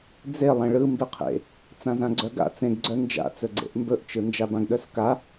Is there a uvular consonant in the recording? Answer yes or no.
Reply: yes